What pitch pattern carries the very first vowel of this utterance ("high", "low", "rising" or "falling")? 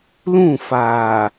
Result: falling